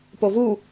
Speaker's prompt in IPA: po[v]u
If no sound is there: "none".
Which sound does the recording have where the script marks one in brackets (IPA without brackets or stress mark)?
v